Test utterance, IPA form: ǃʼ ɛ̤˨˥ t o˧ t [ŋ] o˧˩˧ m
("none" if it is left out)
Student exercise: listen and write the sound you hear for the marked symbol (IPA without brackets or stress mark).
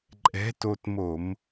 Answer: m